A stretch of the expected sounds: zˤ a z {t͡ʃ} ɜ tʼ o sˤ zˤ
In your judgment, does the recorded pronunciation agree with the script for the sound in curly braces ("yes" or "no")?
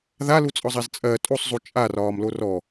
no